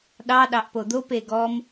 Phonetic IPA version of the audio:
ɗɑɗɑʔ pod̪ope ɡɔm

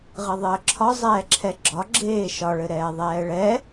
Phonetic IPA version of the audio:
ʁɘðˤəːǁʰɒ zˤɛːǁʰɛɡ͡ǁɒ ɡ͡ǁeːʃɒ ɭɘɾɛːðˤɛːɭɛ

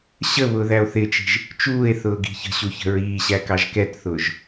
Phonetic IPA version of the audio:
ɕəβʊːðæo̯ θɪt͡ʃi̤ʒ | t͡ʃuːe̯θʊːɡi̤ çə̤ɕuçə̤ ɹiːɕækɑʒ kɛtθʊːʒ

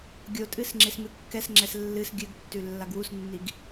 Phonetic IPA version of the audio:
ɡʲotʼɨs ŋ͡ǁesmɨkːɛsŋ͡ǁɛs lːɨs ɡʲɨɡtːʉ lːaɡwusnːiɡ

